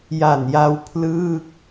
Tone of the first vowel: low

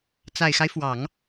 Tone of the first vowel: low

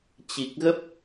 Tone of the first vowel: low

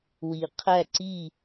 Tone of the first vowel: low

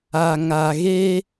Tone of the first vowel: low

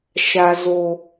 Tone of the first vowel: low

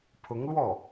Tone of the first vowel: rising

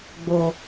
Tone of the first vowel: low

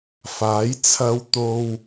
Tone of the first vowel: rising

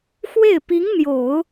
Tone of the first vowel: falling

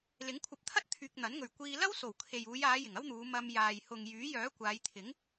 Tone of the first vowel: rising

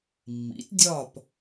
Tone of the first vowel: rising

